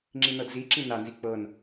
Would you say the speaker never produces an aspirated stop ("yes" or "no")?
yes